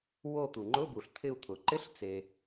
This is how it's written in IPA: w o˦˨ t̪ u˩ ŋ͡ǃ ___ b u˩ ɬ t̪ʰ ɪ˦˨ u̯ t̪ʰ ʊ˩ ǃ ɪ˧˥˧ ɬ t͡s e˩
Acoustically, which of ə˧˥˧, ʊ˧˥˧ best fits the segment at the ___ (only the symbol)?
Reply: ʊ˧˥˧